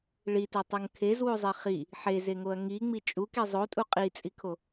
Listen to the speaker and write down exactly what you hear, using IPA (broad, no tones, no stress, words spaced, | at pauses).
ɭitutˤuŋ kʰezwuzˤe χi | ħezeŋoɐ̯ ŋiŋ͡mi t͡ʃʼuki zˤotʼu qʼit͡sʼikʰo